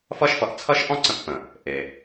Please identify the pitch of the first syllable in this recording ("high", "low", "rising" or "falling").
high